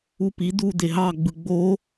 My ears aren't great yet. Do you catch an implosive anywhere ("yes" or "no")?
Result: no